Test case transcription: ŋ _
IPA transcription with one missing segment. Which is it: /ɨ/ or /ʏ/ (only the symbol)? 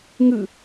ɨ